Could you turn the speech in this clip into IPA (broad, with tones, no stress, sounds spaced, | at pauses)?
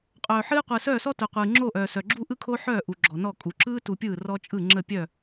qʼ œː˨ ħ ɨː˦ qʷ ɯː˨ s œː˦˨ s ɔ˦ t œ˨ qʷ ɯː˨ ŋ͡ǁ o˦˨ ʔ œː˨ s œ˨ ɡ͡ǁ u˦ ʔ ɯ˦ kʰ o˦ ħ œː˦˨ ʔ u˨ ɡ͡ǁ ɔ˨ n ɔ˦˨ kʼ u˨ ǁ ɯː˦ t u˨ pʲ ɯː˦˨ r ɔ˦ t͡ʃʼ ɯ˦˨ ŋ͡ǁ ə˦˨ pʲ œ˦˨